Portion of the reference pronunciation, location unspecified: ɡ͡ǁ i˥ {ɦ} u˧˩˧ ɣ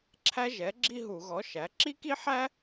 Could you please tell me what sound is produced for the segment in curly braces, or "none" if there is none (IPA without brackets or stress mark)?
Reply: ɦ